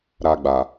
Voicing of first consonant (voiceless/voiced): voiced